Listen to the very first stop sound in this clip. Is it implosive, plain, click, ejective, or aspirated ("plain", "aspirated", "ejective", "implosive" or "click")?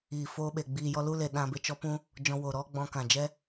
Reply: implosive